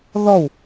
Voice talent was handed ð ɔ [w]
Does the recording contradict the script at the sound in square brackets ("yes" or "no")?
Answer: no